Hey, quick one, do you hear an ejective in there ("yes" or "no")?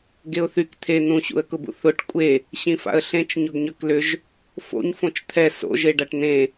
yes